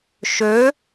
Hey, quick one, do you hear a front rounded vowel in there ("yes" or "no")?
yes